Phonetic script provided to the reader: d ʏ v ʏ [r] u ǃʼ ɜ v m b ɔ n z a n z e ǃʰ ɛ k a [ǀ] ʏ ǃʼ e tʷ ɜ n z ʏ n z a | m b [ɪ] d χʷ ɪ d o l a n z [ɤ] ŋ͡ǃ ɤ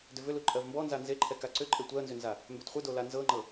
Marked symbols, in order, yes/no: no, yes, no, yes

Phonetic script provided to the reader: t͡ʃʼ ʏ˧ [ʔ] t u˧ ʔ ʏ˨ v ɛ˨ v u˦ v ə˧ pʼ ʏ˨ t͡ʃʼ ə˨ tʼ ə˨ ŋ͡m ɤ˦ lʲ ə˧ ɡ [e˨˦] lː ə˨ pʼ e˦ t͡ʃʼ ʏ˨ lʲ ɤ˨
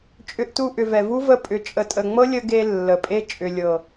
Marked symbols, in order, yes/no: yes, no

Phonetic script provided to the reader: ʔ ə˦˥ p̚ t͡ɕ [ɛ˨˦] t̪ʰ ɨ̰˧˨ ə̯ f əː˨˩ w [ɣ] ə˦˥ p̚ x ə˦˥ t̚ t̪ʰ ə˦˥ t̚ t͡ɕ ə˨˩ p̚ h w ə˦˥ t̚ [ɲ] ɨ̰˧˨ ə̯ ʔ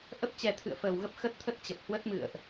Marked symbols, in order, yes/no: no, yes, no

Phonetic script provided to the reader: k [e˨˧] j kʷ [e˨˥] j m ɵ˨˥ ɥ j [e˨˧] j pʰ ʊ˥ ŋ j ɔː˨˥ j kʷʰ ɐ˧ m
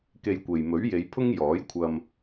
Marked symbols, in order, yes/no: no, no, yes

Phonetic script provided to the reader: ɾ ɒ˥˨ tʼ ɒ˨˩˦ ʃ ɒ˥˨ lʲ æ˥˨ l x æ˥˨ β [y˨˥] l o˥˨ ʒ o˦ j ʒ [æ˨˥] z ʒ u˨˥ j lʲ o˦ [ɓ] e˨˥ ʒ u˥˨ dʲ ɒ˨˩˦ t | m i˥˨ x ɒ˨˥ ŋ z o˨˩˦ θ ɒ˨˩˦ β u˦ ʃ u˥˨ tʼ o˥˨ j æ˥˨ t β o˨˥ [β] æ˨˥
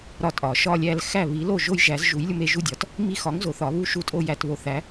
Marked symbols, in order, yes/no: no, yes, no, no

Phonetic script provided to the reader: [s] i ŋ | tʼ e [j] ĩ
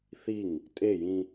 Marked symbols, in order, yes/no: no, yes

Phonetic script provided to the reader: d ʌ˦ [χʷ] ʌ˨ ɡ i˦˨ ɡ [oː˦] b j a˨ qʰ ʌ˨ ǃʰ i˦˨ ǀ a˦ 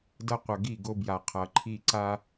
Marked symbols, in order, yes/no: no, no

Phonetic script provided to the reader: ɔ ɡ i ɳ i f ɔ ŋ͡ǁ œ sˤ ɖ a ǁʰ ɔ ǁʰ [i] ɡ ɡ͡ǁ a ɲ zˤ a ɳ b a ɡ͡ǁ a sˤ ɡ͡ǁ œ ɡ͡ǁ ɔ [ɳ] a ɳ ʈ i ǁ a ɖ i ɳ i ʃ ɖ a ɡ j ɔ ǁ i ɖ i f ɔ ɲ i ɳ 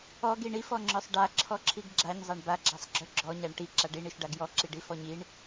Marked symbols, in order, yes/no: yes, no

